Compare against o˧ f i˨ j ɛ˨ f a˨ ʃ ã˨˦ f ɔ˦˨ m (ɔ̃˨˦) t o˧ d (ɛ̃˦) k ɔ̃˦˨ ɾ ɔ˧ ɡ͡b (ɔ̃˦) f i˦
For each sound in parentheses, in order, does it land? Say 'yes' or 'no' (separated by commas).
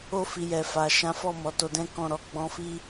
no, yes, no